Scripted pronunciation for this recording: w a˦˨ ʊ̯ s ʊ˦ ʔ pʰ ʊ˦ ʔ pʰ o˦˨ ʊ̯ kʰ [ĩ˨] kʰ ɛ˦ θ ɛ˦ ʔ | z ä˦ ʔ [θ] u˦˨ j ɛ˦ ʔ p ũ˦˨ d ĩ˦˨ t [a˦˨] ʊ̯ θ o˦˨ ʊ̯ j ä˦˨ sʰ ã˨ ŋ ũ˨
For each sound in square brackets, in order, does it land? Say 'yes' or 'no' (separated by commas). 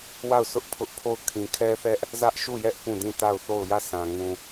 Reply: yes, no, yes